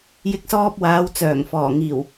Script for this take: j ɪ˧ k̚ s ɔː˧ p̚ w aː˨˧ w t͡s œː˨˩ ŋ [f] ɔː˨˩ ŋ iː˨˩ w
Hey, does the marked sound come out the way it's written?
yes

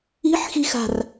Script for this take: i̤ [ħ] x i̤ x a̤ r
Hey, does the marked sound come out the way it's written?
yes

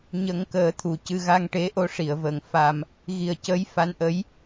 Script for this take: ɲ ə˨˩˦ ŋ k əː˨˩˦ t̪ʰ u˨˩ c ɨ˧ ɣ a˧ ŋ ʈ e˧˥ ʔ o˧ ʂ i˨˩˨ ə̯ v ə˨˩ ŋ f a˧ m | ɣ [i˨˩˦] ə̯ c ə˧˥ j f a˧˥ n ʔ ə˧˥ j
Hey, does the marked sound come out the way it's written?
no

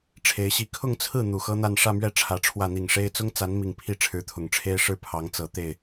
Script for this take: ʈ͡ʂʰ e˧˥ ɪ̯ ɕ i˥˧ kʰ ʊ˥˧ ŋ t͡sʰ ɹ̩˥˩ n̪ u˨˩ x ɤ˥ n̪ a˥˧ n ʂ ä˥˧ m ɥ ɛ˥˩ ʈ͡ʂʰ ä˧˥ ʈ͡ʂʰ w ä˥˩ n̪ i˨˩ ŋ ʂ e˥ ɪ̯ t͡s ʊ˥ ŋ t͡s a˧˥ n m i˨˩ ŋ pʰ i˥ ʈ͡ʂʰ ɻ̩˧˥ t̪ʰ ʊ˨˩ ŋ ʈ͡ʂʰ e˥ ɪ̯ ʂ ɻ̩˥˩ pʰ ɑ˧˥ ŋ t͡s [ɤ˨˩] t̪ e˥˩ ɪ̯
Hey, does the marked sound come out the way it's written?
yes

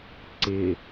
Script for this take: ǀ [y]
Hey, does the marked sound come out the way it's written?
no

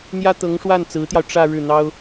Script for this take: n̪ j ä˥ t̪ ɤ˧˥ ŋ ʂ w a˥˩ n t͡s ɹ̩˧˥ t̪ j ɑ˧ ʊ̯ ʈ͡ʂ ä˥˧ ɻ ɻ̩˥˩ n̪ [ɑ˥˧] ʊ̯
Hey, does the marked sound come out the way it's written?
no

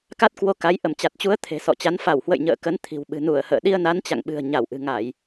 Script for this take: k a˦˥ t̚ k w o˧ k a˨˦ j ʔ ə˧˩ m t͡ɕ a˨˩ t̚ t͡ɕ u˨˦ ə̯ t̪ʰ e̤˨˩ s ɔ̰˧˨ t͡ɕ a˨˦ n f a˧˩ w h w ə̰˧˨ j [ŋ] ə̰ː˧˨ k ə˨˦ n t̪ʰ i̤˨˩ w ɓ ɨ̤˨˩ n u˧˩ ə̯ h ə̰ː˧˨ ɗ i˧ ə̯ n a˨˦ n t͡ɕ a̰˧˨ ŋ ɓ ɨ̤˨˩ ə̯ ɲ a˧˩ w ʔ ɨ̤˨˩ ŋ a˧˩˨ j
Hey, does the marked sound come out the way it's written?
no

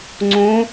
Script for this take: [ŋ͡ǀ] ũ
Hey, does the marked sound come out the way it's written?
yes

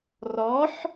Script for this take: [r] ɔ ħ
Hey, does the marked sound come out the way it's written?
yes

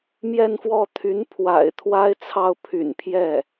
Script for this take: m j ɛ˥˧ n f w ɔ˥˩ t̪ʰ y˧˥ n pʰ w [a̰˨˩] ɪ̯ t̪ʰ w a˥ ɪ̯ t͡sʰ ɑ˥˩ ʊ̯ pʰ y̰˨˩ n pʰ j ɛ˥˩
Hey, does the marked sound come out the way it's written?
yes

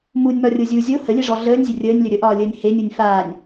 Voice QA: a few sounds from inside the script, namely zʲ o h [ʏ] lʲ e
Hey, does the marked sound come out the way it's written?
no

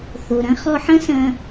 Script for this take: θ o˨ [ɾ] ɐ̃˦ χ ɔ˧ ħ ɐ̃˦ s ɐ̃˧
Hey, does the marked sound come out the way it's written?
yes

